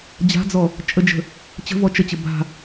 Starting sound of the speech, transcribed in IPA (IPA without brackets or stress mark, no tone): d͡ʑ